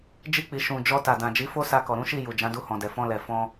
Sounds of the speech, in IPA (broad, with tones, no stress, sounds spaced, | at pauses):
d͡ʒ i˧ k͡p i˨ ʃ ũ˨ d͡ʒ ɔ˧ t a˨ d ã˨ d͡ʒ i˨˦ f o˦ s a˧ k ɔ˨ ɾ ũ˨˦ ʃ i˦˨ j u˨ d͡ʒ ã˨˦ d u˧ h ɔ̃˨ d ɛ˨ f ɔ̃˧ l ɛ˨ f ɔ̃˧